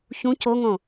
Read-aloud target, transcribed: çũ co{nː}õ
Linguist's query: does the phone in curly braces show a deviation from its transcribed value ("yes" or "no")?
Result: yes